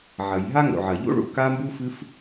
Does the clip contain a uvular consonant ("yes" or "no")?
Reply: no